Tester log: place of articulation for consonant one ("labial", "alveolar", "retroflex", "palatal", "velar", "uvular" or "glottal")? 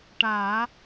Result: retroflex